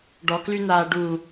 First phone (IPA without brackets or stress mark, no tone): ɖ